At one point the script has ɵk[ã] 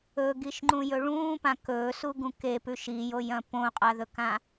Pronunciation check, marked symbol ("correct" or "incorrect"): correct